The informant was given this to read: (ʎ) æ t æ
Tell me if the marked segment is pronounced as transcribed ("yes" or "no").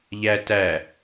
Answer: yes